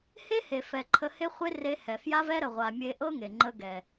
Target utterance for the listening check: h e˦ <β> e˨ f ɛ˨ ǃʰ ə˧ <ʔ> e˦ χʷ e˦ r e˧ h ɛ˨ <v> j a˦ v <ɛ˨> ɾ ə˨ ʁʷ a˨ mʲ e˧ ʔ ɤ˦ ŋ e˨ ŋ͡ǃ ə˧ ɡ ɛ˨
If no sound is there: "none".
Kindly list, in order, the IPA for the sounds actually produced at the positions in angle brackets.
h, h, f, ɛ˦

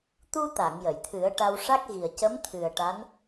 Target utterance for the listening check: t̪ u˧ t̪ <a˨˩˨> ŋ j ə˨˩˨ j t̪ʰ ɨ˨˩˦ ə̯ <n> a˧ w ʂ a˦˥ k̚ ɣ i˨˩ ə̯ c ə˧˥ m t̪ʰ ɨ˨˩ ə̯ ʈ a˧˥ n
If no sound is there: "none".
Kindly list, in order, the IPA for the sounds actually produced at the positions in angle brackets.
a˨˩˨, ʈ

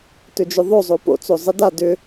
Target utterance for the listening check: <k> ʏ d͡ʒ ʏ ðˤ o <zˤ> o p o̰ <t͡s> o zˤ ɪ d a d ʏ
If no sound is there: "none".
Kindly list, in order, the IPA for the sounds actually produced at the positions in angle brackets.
t, zˤ, t͡s

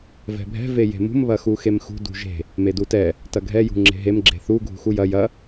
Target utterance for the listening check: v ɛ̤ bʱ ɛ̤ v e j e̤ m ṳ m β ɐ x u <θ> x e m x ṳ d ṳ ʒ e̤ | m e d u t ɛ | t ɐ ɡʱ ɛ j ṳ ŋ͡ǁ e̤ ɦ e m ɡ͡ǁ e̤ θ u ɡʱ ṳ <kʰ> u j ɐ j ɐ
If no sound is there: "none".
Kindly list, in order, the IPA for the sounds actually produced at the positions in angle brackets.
none, x

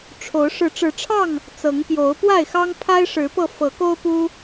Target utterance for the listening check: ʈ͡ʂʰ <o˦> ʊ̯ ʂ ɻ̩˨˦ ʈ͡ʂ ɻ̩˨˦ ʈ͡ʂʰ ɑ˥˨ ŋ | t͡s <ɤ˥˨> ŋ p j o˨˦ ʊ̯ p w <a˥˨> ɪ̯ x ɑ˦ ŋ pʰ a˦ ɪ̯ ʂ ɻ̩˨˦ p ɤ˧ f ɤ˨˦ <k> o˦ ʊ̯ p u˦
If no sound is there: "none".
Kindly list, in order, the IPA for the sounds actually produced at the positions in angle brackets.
o˨˦, ɤ˨˦, a˥˨, k

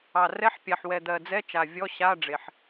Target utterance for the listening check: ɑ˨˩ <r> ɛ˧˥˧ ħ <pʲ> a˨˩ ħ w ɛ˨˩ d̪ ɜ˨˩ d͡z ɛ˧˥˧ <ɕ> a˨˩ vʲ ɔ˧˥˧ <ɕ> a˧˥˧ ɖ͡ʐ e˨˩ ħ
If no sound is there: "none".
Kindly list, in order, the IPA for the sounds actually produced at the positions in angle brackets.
r, pʲ, t͡ʃ, ɕ

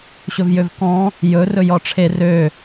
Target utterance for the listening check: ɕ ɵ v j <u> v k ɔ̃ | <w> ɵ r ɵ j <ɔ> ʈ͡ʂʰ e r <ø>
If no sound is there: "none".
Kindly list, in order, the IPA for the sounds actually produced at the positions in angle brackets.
ø, j, ɔ, ø

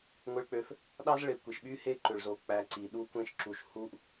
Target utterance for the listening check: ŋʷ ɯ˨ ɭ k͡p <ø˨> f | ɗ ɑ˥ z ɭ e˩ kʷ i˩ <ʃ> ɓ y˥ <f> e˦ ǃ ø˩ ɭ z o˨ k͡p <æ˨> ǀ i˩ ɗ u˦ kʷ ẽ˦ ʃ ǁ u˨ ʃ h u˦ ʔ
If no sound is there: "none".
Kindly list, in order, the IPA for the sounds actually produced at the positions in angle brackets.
ø˨, ʃ, h, æ˨

